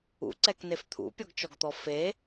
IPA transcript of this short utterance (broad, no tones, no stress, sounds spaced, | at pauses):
ṵ ǀ ɛ k n e f t̪ʰ ṵ pʲ ɔ ɡ t͡ʃ ɔ ɡ t̪ ɔ f e